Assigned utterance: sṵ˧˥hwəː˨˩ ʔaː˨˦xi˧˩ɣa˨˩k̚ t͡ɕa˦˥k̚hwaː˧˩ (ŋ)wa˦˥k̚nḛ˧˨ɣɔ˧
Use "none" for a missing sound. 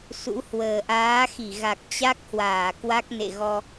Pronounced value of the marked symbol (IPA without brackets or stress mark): k